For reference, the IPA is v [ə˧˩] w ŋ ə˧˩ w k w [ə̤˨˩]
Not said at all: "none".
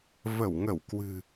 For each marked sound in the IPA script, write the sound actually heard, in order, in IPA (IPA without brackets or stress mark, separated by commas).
ə˧˩, ɨ̤˨˩